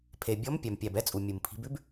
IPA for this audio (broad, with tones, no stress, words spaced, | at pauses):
pʰe˩ bʲɔ˨˦m pʲæ˩mpʲæ˩bɛ˦t͡sʼu˩ mʲu˩mpʰi̤˨˦b ʉ˦b